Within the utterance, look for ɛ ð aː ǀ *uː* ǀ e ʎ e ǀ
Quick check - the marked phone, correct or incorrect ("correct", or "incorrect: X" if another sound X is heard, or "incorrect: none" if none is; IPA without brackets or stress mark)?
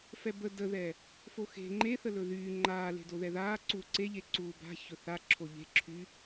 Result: correct